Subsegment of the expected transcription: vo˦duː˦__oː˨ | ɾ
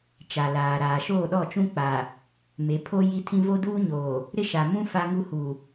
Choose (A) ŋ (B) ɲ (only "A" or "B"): B